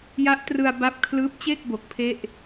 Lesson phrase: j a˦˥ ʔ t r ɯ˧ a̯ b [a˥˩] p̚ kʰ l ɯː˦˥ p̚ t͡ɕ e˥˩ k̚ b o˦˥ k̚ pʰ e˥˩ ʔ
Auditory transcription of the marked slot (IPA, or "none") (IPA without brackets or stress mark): a˦˥